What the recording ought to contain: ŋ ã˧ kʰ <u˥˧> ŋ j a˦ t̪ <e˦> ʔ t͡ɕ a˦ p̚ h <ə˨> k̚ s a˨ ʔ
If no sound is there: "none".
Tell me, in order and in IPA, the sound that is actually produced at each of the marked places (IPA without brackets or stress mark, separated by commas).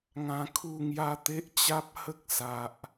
u˥˧, e˦, ə˦